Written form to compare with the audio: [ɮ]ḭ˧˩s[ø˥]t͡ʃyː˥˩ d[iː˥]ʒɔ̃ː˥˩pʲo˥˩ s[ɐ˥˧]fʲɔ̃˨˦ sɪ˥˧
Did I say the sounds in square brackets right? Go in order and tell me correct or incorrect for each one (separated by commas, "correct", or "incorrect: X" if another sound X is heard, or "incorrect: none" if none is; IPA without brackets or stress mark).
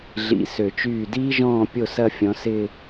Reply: correct, incorrect: ø˧˩˧, correct, correct